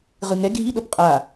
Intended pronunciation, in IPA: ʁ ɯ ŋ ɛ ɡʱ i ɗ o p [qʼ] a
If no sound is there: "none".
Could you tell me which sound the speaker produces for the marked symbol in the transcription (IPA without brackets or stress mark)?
qʼ